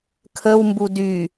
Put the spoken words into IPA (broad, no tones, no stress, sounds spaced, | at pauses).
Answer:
kʰ ə w m b u d y